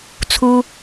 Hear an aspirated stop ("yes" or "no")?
yes